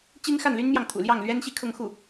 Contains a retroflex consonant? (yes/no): no